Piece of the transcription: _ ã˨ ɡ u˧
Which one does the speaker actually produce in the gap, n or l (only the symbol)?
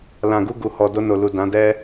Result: l